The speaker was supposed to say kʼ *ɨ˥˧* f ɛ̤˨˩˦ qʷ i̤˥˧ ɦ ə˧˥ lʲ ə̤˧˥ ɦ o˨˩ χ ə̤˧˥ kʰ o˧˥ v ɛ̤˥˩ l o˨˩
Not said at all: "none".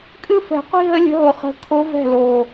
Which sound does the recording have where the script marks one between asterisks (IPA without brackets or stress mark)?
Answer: ɨ˥˧